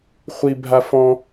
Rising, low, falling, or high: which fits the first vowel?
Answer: high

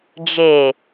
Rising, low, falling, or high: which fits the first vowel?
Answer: low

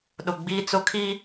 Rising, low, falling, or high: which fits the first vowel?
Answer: low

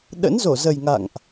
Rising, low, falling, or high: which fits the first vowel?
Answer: rising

